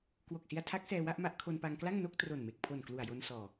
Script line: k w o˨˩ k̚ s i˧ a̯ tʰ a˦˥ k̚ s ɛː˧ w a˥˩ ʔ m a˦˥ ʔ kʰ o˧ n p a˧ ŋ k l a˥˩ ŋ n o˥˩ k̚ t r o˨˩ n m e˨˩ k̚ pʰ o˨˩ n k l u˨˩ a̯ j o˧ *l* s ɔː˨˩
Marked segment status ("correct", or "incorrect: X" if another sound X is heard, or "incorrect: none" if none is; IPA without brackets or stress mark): incorrect: n